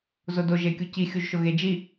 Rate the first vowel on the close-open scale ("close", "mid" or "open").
close